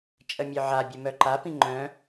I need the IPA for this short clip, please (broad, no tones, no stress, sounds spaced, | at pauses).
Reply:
t͡ʃʼ ə mʲ œ ʕ a bʲ ə m œ ǃ a p ĩ ŋ͡ǃ œ̃